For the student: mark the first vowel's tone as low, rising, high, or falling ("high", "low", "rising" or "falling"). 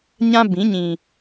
high